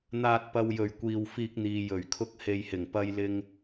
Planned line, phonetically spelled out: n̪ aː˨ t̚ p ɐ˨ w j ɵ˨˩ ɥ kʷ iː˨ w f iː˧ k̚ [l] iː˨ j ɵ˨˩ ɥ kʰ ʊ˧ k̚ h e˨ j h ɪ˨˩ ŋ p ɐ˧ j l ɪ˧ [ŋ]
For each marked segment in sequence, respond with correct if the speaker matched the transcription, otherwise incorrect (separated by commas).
incorrect, correct